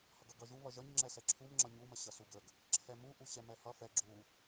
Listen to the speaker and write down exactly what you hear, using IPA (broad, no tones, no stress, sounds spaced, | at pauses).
h ʌ ɡ ʌ ɡ ʌ ʒ u β ʌ ʒ ʌ ɲ ŋ͡ǁ ɛ s ɛ ǁʰ u m ŋ͡ǁ ʌ ɲ u m ə ɕ ʌ s u ɡ ə ɡ | ǁʰ ɛ m u ʔ u ɕ ɛ m ɛ h ʌ f ɛ ɡ͡ǁ u